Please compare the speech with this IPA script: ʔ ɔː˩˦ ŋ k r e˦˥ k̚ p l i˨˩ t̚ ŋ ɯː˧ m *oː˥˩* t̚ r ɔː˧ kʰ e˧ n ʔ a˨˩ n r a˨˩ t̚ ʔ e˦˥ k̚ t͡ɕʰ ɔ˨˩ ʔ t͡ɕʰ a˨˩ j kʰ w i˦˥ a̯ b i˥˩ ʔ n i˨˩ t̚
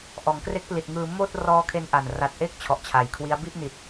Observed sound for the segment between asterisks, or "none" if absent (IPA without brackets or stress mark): oː˥˩